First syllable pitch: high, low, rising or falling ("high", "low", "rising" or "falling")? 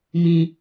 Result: high